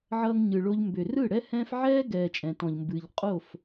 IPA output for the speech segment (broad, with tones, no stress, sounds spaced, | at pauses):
ʕ ʌː˧ ŋ ɲ ɯ˨ ɭ o˧ ʎ m b ʏː˨ r ɯ˦˨ ɽ ɛ˦ h ɛ̃ː˦ f ʕ ɛː˦ ɡ ɛː˨ t͡ʃʼ ɛ̃˨ t ɔ̃˨ ʎ m b ɨː˨ ʎ qʼ o˦˨ f